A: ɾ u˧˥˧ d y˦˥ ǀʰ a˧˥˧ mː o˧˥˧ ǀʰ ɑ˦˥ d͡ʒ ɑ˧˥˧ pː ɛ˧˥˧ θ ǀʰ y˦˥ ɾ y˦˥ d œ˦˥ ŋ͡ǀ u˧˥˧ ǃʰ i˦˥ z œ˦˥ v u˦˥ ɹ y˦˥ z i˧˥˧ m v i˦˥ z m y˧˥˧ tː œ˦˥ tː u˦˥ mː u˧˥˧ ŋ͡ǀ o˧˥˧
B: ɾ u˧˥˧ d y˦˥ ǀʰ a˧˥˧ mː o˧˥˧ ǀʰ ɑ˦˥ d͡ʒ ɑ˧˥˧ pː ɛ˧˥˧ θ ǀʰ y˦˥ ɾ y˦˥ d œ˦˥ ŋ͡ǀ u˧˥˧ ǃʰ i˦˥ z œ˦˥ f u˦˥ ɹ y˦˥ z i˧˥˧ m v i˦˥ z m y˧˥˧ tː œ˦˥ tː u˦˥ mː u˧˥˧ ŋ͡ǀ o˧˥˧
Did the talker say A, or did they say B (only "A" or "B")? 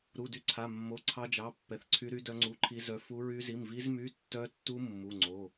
B